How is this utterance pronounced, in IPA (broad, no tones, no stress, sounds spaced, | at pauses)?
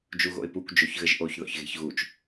d͡ʒ u ɣ o̰ ɪ̯ p u kʷ d͡ʒ o ç ɣ ɘ ʒ ʔ o ç ð ɔ̰ ç ɣ e̤ ç ɣ u t͡ʃ